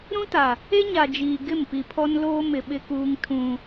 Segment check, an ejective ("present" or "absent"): absent